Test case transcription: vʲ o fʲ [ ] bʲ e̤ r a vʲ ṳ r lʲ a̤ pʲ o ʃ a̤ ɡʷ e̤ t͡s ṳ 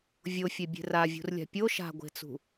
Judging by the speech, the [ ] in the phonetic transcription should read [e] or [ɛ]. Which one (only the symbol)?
e